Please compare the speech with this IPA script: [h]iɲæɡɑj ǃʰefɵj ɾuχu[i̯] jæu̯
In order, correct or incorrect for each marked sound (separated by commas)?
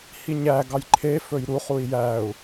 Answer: correct, correct